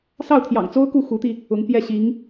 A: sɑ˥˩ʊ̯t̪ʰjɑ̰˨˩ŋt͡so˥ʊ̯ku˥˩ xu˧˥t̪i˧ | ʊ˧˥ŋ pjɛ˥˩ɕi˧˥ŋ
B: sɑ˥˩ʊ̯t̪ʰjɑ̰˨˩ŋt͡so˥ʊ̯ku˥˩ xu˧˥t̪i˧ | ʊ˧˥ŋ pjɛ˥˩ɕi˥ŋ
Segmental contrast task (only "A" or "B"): A